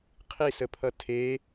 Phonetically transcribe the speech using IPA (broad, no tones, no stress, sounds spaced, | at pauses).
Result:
qʰ i s ə pʰ ʌ tʰ e